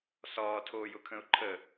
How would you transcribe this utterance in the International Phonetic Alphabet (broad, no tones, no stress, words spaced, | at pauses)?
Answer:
sɒːtʰoːjʊkʰə̃ʊ̯ ǃʰə